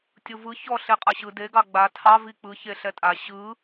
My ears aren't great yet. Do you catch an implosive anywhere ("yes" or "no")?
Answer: no